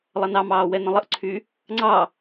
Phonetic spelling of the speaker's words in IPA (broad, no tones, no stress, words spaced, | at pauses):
lˠʌnɑmɑː wɛnə̃lˠəʔǀʰy | ŋ͡ǀɑ